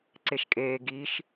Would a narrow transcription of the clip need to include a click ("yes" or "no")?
yes